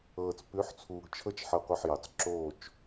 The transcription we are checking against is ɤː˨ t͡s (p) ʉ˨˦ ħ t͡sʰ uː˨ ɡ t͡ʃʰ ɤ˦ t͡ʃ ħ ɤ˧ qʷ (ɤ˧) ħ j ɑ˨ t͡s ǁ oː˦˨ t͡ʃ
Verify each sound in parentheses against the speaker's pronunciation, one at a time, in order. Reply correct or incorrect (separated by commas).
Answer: correct, correct